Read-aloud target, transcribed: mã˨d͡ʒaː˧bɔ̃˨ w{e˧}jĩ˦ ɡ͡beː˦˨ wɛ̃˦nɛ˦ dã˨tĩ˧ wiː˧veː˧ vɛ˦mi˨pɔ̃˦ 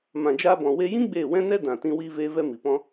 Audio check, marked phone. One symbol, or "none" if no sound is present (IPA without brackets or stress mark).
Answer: e˧